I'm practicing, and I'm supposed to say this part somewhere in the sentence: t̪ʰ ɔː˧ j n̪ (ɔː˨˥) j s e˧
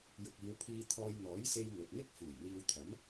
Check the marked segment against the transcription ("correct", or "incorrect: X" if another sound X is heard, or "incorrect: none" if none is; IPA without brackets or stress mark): correct